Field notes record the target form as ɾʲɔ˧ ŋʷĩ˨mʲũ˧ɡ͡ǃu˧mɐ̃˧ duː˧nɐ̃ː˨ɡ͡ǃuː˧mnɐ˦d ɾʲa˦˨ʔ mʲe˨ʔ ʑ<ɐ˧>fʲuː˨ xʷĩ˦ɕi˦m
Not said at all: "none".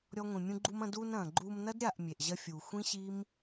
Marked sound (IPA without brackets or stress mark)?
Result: ɐ˧